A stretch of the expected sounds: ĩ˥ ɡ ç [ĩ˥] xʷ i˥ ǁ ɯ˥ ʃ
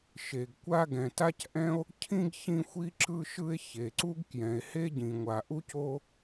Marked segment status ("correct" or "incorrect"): correct